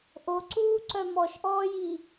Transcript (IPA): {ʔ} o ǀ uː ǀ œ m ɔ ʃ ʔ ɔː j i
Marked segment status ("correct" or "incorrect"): correct